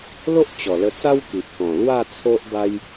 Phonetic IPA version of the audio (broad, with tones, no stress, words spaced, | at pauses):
lo˦ʔt͡ɕɔ˨˩lə˧t͡sa˦w ki˨ʔkɔ̃˨˩ lwa˥˧ t͡sʰo˦ʔba˦j